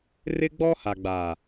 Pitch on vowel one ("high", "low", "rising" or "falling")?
high